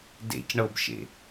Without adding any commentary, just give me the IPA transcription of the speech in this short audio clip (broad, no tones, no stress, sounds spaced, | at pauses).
d ḛ c ɳ ɤ b ʃ ḛ